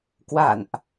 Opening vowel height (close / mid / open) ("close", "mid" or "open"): open